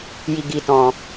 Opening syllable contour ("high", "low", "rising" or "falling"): low